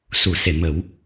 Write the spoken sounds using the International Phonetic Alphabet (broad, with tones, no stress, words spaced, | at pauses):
su˨˩˨se˨˩˨ mə˨˩˦w